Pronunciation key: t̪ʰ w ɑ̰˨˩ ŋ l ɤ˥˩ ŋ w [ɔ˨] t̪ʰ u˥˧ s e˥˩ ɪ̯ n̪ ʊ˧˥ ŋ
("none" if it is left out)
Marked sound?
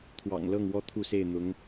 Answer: ɔ˥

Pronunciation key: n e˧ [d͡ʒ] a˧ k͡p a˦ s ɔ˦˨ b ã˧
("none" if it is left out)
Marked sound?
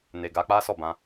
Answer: ɡ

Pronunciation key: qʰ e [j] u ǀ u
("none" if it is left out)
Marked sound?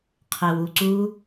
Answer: w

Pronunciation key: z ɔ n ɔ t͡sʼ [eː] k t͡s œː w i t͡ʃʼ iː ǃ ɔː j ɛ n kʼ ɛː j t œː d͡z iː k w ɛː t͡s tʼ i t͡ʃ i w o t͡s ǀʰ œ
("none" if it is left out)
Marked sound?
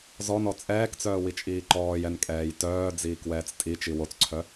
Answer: ɛː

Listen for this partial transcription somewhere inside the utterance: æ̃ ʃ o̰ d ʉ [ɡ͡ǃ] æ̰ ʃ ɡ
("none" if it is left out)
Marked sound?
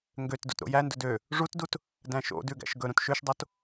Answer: ɡ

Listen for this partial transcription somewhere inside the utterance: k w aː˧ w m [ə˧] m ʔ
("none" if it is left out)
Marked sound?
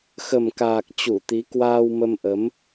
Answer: ə˧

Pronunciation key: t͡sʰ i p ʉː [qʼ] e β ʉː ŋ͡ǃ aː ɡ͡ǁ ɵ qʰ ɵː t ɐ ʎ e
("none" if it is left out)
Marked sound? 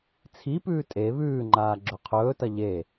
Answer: tʼ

